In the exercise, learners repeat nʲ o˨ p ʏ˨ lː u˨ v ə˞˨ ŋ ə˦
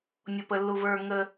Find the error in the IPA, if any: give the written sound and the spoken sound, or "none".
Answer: ʏ˨ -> ə˨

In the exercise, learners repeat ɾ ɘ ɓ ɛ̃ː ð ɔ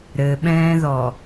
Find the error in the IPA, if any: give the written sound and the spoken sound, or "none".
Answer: none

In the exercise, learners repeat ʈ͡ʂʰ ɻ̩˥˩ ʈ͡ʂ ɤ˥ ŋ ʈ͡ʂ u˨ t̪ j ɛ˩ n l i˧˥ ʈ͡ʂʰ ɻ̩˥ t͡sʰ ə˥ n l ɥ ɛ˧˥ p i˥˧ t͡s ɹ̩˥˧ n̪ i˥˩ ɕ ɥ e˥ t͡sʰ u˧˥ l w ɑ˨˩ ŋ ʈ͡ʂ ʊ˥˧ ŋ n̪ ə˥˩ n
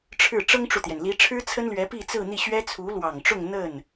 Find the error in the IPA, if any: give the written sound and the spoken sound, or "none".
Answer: e˥ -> ɛ˥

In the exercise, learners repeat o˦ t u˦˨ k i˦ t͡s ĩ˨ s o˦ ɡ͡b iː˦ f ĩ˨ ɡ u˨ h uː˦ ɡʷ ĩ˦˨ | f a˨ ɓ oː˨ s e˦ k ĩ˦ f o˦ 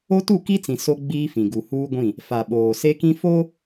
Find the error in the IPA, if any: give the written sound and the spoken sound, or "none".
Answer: none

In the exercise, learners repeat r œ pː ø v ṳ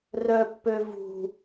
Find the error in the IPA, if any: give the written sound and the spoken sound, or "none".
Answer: none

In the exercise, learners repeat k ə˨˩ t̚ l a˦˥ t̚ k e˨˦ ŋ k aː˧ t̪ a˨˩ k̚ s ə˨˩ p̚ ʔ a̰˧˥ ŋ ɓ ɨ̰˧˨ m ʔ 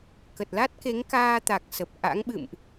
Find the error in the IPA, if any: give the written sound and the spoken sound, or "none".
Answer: none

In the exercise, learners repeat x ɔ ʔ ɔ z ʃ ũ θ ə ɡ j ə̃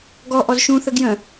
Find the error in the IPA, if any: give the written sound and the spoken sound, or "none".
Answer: x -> ɡ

